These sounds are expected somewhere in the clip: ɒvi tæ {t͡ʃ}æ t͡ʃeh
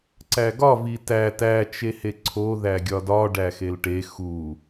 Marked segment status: incorrect: t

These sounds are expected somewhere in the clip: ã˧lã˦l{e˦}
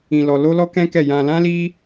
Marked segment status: incorrect: i˦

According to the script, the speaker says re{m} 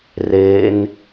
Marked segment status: incorrect: n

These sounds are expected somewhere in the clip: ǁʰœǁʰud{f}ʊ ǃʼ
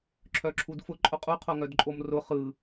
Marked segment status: correct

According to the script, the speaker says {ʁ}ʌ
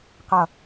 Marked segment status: incorrect: q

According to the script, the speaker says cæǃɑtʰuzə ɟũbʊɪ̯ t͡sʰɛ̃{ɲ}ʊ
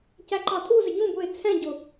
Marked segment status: incorrect: ɟ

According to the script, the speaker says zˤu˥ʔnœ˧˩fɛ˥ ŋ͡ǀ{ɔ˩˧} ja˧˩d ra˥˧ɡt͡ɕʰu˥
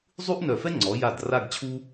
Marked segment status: correct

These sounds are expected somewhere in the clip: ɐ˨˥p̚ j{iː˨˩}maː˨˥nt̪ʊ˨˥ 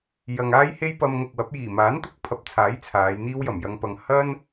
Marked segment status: correct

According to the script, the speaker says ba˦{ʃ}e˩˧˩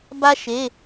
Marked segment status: correct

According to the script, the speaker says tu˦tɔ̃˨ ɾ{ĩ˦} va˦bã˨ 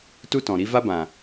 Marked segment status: incorrect: i˦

